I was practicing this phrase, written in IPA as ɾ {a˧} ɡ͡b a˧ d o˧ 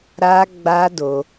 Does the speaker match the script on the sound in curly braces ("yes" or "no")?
yes